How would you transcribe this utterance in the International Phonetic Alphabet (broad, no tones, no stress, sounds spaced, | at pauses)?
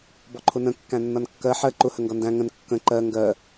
b ɔ ǃʰ ʊ n ə̃ kː æ̃ nː ʌ n kː ɜ ħ ɜ ǃ ʊ h ə ŋ ɡ ʌ n d æ̃ ŋ ə̃ n kː ə̃ ǃ ɜ ŋ ɡ ɜ